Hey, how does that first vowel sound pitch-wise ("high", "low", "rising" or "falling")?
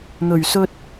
low